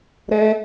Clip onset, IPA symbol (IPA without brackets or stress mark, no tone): ɾ